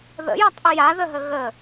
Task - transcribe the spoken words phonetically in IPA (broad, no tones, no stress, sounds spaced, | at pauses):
ð ə̰ j a tˤ ʔ ɪ j a ð ə ɦ ə ɣ ə